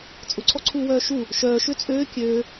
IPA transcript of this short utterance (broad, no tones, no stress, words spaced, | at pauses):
t͡sʼʊǀʰɔǀʰuːwœː ʃu | ʃœːʃø t͡sʼøː kʲøː